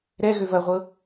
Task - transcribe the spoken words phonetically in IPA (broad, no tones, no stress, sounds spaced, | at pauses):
ɾ ɛ ɣ ø v ɐ ʁʷ ɤ